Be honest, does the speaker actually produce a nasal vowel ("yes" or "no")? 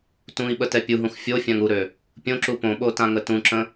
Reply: yes